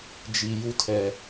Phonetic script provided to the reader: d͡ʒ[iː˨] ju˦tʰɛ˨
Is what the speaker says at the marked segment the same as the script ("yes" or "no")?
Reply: no